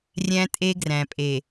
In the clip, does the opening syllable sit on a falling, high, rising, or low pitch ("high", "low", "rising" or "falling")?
high